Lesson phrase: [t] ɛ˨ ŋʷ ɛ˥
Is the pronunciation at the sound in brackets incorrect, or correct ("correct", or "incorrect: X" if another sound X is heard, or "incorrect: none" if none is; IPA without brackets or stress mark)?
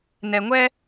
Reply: incorrect: n